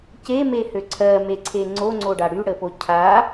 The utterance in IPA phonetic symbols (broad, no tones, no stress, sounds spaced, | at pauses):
c e m e h ø ǀʰ ɜ m e ǀʰ e ŋ͡ǀ o ŋ͡ǀ o ɖ a ɽ y ɽ ə p o cʰ a